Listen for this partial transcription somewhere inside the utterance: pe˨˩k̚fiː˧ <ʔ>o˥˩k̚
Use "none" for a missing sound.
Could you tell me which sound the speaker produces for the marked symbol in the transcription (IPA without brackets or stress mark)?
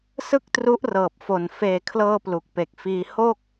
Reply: h